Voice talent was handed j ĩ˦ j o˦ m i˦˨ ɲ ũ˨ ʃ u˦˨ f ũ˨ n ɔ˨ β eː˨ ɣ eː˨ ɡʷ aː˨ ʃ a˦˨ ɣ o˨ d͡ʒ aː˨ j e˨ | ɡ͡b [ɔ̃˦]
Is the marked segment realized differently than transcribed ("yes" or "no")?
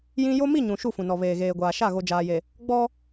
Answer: yes